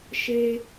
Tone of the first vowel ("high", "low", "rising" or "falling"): high